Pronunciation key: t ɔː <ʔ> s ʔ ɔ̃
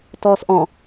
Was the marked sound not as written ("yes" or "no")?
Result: yes